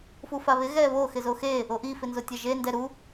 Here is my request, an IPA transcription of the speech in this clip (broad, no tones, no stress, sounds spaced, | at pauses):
f u f a β ɪ ɣ ɛ β o x ɪ z o x e | o ʔ i f ɪ n z o tʲ ɛ ʒ e n d ɛ ɾ u